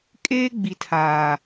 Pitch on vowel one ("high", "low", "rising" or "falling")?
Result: high